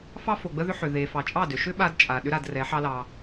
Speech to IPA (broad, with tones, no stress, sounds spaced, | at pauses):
f ɑ˦ f o˨ ɡ͡b ə˦ ð ʏ˦ ħ ʏ˨ ð e˨ f ɑ˨ t͡ʃʼ ɑ˦˨ d ʏ˨ ʃ ʏ˦ ɓ a˦ d t͡ʃʼ a˨ ɗ ʏ˦ ɾ a˦˨ d r ɛ˨˦ ħ ɑ˦ l ɑ˦